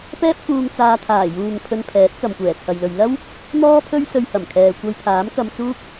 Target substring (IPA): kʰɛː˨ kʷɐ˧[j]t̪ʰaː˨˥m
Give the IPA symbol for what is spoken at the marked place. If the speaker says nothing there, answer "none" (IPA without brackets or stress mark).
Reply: j